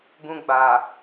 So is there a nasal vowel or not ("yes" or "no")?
yes